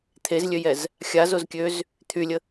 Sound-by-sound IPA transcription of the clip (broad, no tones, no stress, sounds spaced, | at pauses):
t̪ʰ e z lʲ ø j ɛ z | xʲ a z o z kʲ ø z | t̪ʰ y lʲ ə